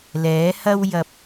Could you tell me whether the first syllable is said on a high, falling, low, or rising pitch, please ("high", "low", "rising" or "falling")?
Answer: rising